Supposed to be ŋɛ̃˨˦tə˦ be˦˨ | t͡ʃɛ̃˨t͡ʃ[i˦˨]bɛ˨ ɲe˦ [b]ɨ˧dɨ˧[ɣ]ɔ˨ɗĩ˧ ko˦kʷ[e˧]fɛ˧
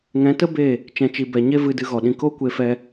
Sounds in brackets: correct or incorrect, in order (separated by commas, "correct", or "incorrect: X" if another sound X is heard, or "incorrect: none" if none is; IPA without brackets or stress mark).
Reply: incorrect: i˨, incorrect: v, correct, correct